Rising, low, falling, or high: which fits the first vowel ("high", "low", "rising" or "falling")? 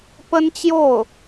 high